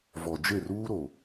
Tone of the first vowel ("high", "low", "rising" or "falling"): low